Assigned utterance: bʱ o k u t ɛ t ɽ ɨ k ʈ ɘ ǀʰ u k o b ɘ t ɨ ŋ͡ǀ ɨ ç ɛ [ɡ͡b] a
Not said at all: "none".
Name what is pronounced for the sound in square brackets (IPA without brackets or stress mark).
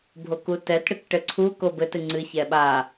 ɓ